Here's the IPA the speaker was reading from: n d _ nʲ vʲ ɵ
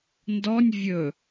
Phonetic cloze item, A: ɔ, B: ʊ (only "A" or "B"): A